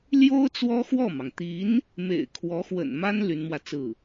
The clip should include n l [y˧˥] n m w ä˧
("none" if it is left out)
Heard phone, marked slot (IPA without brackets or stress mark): y˧˥